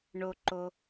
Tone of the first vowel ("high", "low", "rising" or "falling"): low